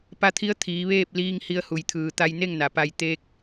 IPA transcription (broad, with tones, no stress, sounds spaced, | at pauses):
p a˧˥ t̪ʰ i˧˥ ə̯ t̪ʰ iː˩˧ ʋ eː˥˨ p̚ l iː˧ ŋ h i˧ ə̯ h u˩ j t̪ʰ ɯː˩ t̪ a˧ j n e˥˨ ŋ n a˩˧ p a˧ j t̪ e˧ k̚